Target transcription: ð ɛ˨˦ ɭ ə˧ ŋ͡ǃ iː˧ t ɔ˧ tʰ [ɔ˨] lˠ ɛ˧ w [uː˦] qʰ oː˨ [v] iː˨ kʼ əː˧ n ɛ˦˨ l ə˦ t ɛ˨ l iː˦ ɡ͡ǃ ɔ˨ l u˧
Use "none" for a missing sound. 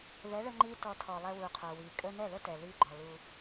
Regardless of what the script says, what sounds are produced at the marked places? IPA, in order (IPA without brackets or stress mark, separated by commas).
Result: ɔ˨, uː˨, w